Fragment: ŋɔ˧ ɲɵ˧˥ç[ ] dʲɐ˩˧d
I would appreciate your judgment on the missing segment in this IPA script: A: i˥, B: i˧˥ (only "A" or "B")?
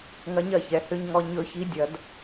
B